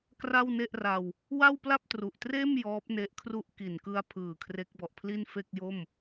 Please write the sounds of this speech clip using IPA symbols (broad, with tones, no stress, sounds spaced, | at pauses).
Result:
k r a˥˩ w n e˥˩ ʔ r a˧ w | w a˥˩ w p l a˥˩ p̚ t r u˨˩ ʔ t r eː˥˩ m j ɔː˦˥ p̚ n e˦˥ ʔ kʰ r u˥˩ ʔ k i˨˩ n k ɯ˧ a̯ pʰ ɯː˨˩ kʰ r e˦˥ k̚ b ɔ˨˩ ʔ pʰ l i˥˩ n f e˥˩ k̚ j o˥˩ m